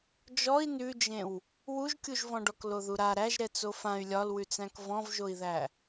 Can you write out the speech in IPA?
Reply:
d͡ʒ ɔ i̯ n ʉ d͡ʒ ẽ w | w u ʒ kʲ u ʒ v ɔ̃ ɖ ɔ k l o ð u ɾ a ɾ æ ʒ ɾ ɛ t͡s o f ã y̯ lʲ ɒ l w ʉ t͡s æ̃ k v ɔ̃ v ʒ o i̯ ð æ

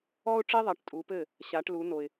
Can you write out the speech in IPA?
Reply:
ɔ˦ ʊ̯ ʈ͡ʂ i˦ ðˤ ɐ˨˦ ʈ tʼ u˨˦ p ɘ˥˩ | ɕ a˨˦ ʈ l u˨˦ n o˨ ɪ̯

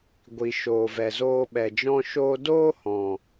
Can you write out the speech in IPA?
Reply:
ɡʷ i˨ ʃ o˨ v ɛ˨ z oː˧ ɓ ɛ˨ d͡ʒ ɔ̃˧ ʃ oː˧ d oː˦ h ɔ̃˨

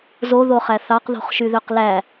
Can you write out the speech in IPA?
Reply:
z o ð o χ æ θ ɑ q ð o̤ χ ʃ y ð ø q l æ

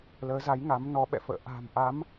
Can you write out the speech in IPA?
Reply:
l əː˨˦ z a˨˦ j ŋ a˨˦ m n ɔ˨˦ ɓ ɛ̰˧˨ f ə̰ː˧˨ ʔ a̤˨˩ m ʔ a˨˦ m

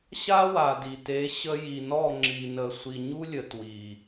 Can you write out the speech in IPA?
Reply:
ɕ a˦ w a˨ d i˨ t e˨˦ ɕ ə˧ j i˨ n ɔ˦˨ ŋ͡ǁ i˨ n ə˨ sʷ i˨ ɲ u˦ lʲ ə˨ t w i˨

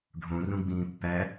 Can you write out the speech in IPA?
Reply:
ɖʱ õ r ũ ɡ͡b ĩː pː æ

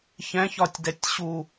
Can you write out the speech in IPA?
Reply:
ç ɛ̃ ç ɒ tʲ d ɛ tʲ ɕ u

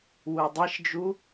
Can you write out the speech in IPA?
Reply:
w u dˤ e ʃ d͡ʒ u

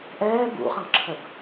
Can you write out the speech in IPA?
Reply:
ʔ ɛː b ṵ χ ə̃ ʁ ǁʰ ə b

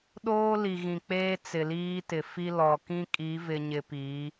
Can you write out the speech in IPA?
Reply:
ɗ oː˦ l i˨ ɣ ĩ˨ k͡p eː˦ t͡s ɪ˨ l iː˦ t ɪ˨ f i˦ l ɔ˨ k ĩ˦ kʼ i˨˦ v ɪ˨ ɲ ɪ˨ p i˨˦

